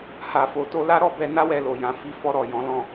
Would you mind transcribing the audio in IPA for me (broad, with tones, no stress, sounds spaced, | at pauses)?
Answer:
h a˨ f o˨ t o˧ l a˦ ɾ ɔ˦˨ b ɛ˧ n a˦ w ɛ˧ l o˨ j ã˨ f i˨˦ f ɔ˧ ɾ ɔ˨ j ɔ̃˨˦ l ɔ̃˦˨